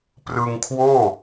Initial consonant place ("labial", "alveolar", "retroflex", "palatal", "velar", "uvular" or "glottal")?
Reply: labial